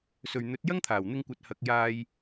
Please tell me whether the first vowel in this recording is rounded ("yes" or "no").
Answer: yes